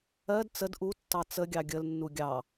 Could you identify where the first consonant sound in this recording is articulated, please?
alveolar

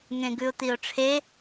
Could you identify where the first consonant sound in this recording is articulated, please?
velar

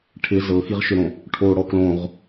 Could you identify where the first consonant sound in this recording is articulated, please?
retroflex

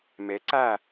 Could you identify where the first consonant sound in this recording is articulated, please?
labial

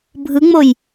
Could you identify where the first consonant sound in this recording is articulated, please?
labial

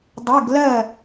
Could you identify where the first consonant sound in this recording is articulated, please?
alveolar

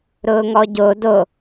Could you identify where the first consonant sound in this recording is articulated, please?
alveolar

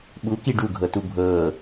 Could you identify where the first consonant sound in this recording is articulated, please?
labial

